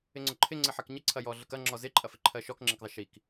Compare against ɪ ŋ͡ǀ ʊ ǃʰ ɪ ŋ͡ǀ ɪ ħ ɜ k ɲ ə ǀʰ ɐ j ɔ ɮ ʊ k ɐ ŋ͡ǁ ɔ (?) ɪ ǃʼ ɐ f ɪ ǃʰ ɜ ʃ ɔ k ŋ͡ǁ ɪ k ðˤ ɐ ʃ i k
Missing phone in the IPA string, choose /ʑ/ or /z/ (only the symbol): z